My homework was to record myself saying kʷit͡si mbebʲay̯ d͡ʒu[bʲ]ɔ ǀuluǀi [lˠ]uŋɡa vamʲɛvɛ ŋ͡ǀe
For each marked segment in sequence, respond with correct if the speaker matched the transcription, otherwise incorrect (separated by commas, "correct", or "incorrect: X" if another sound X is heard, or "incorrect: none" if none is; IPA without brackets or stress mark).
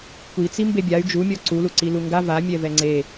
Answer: incorrect: mʲ, incorrect: l